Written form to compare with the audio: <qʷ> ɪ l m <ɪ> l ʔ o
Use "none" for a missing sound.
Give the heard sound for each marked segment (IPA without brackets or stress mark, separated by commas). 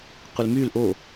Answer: qʷ, y